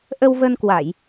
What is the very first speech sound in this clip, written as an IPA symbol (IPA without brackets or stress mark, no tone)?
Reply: ʔ